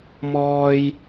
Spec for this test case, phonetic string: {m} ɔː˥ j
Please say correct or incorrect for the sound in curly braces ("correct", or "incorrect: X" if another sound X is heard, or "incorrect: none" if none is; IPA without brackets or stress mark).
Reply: correct